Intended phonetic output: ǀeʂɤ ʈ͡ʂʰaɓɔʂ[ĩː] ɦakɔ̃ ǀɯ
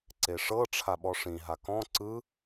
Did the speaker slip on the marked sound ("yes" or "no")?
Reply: yes